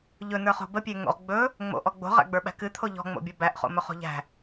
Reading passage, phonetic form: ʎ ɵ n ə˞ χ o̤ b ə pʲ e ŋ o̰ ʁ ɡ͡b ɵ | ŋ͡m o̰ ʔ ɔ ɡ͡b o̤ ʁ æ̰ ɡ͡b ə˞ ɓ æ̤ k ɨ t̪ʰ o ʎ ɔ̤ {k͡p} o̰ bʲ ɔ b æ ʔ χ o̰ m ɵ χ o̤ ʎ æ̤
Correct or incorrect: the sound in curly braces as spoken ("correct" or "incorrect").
incorrect